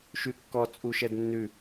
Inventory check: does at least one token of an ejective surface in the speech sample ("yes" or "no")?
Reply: yes